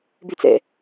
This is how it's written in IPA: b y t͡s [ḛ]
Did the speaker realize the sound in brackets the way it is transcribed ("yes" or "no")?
yes